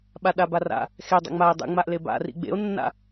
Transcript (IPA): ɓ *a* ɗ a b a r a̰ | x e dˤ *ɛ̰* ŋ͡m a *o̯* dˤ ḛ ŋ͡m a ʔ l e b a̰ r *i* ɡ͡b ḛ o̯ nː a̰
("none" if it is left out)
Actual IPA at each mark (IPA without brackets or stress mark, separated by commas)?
a, ɛ̰, e̯, ḭ